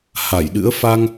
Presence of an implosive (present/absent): present